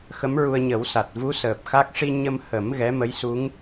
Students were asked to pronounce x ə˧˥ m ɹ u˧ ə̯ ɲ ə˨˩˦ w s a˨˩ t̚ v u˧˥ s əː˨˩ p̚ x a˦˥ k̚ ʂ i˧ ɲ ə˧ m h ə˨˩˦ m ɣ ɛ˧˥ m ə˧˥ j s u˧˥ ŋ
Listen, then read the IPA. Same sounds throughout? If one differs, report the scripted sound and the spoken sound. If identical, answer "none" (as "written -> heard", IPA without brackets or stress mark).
none